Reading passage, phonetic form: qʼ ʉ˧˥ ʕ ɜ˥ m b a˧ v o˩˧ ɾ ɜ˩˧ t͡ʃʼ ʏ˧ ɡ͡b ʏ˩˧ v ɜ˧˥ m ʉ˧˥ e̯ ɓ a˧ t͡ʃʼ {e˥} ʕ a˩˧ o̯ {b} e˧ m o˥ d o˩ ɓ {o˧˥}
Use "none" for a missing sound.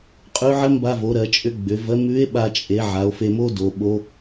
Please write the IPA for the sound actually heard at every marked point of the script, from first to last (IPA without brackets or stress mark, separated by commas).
e˩˧, f, o˧˥